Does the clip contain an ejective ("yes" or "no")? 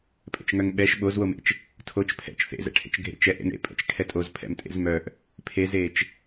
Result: yes